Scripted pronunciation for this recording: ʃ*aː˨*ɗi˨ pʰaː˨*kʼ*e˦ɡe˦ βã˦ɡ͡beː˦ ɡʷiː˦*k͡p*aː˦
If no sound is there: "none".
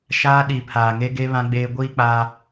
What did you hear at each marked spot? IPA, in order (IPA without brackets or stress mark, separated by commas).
aː˦, ŋ, k͡p